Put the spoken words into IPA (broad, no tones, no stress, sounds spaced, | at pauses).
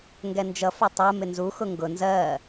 ŋ ɡ ɛ n d͡ʒ ʌ f ʊ tˤ ɜ m ɪ n z u x ʊ ŋ ɡ ʊ n z ɜ